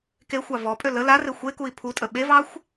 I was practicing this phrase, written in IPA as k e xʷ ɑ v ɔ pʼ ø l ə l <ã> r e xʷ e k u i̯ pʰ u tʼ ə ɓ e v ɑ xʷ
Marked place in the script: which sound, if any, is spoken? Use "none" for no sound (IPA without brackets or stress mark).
a